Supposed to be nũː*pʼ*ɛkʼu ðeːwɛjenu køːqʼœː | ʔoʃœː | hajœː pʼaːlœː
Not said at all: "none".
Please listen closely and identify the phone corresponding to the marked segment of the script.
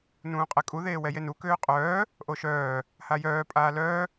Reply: qʼ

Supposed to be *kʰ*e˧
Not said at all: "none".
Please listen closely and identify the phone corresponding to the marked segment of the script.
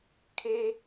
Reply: kʰ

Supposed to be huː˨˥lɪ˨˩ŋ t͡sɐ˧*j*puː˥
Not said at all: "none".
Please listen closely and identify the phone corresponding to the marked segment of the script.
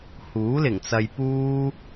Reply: j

